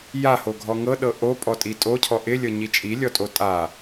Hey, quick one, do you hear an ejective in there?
yes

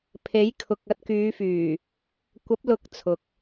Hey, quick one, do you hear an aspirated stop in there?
yes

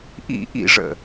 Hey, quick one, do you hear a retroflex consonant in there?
yes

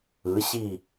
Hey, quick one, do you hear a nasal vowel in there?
no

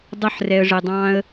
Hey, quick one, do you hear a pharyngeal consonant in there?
yes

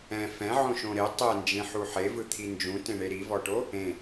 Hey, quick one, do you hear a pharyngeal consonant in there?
yes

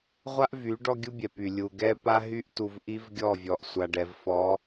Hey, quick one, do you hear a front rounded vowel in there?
yes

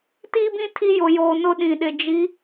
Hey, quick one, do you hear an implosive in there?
yes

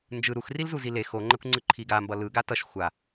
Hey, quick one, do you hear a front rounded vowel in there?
no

